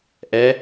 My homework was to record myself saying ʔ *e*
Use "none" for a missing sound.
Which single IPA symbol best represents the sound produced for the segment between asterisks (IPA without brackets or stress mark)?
ɛ